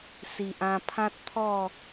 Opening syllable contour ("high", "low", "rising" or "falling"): low